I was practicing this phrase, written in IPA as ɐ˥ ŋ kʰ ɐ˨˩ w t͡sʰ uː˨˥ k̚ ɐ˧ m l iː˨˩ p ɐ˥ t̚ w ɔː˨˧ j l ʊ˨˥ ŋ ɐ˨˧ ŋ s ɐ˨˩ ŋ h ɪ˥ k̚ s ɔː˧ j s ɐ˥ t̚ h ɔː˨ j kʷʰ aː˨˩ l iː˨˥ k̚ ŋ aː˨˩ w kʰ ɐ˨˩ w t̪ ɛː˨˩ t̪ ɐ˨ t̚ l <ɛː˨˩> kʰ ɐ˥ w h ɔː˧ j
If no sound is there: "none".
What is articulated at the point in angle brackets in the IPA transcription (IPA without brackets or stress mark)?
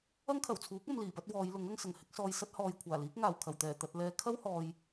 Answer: ɛː˨˧